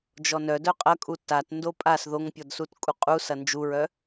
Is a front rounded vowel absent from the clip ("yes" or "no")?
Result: no